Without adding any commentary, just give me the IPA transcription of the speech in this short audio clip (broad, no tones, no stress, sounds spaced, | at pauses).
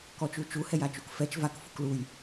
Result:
k ɔ t͡ʃ u t͡ʃ u h ɛ j a t͡ʃ u k f ɛ t͡ʃ v a k f u k l u j